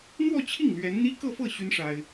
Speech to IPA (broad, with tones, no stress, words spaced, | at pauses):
n̪wɔ˥˧t͡ɕʰi˥˩ŋ lɥɛ˧˥nn̪i˥ kɤ˥˧fɤ˥˩ ɕy˥n ʂa˥ɪ̯